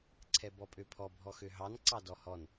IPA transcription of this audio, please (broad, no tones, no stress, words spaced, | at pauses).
ǀʰɛbɔpʼøpʰɔ bʱɔxøɦɑn ǀɑdɔhɔn